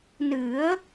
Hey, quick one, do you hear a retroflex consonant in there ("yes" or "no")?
no